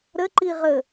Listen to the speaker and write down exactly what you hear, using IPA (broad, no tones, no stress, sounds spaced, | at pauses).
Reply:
ɾ ə ǃ i ʁ ə